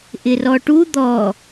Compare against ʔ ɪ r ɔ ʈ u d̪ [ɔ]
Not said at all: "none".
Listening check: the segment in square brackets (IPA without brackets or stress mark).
ɔ